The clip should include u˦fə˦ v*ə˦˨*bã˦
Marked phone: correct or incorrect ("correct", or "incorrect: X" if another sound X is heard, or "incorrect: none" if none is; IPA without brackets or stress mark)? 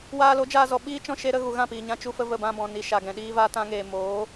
correct